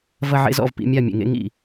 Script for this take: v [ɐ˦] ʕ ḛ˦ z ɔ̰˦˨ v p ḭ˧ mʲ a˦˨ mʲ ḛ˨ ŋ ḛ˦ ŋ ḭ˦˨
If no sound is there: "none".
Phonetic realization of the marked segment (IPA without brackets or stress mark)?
ɐ˦